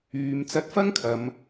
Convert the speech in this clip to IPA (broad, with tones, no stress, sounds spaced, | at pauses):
yː˨˧ m t͡s ɐ˧ t̚ f ɐ˥ ŋ kʰ ɐ˨˧ m